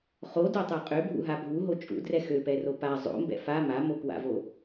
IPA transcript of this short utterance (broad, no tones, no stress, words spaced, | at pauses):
χodotˤɛ qʼøbʱṵɦa bʱuɦo t͡ʃʼṵdrɛ xøpɛro pa zˤo̰mbɛ̰ fa mamokwa̰vo